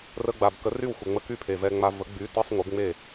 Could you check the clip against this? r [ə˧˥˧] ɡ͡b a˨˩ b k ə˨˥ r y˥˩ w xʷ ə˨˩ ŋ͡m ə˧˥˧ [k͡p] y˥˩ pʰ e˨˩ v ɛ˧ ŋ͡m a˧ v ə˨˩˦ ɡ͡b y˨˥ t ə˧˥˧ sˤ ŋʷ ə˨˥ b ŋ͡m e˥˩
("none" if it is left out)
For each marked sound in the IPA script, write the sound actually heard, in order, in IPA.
ə˧˥˧, k

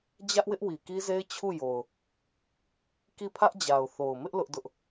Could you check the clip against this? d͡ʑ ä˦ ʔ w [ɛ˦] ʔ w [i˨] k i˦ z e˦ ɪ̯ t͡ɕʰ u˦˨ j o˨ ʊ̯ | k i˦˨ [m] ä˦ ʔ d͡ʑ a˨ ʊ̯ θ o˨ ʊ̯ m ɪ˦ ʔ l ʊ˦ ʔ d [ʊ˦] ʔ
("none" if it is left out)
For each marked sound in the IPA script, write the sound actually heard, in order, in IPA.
ɪ˦, i˨, pʰ, ʊ˦

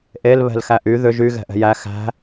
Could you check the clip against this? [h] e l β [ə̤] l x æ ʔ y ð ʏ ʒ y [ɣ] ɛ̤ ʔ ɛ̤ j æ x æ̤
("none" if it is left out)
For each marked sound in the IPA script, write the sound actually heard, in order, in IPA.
ʔ, ɛ̤, ɣ

